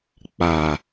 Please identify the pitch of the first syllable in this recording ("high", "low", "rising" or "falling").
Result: low